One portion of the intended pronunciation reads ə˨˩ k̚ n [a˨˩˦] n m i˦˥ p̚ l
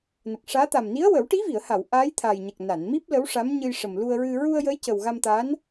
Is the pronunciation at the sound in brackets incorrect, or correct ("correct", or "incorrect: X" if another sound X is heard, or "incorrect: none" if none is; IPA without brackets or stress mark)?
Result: incorrect: a˨˩˨